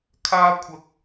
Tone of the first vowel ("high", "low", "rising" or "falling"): high